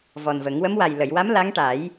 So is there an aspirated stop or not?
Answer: no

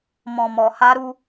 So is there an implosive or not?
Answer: no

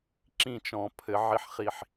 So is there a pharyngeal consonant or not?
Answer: yes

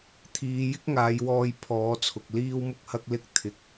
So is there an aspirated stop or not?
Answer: yes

